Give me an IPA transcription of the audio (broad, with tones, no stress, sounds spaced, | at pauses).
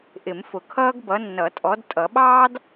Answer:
ʔ ɪ˨˩˦ m f ʊ˨ kʰ ʌː˥ ɡ b ʌ˨˦ nː ʌ˨˩˦ tʼ ɔ˨˦ d tʼ ʌ˨˩˦ ɓ ɑː˥ d